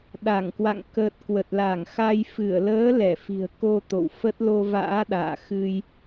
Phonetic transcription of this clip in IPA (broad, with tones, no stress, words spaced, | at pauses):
ɗa˧˩ŋkwa̰˧˨ŋ kə˨˩t̚ kwə˨˩t̚la˧˩ŋxa˧j fɨ˧˩ə̯ləː˨˦ lɛ˧˩fi̤˨˩ə̯ ko˧t̪o̰˧˨w fə˦˥t̚ lo˧va̰ː˧˥ ɗa̰ː˧˨xɨ˧j